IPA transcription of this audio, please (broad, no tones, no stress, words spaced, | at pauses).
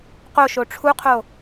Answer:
qoʃo ʈ͡ʂʰuqʰo